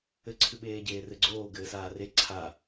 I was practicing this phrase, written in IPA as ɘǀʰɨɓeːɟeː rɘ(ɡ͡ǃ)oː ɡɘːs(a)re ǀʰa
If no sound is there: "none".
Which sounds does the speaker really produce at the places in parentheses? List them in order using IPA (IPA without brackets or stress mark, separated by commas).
ɡ͡ǀ, aː